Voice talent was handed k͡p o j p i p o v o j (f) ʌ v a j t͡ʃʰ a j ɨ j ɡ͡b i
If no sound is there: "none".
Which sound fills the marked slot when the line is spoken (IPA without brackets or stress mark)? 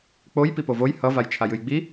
h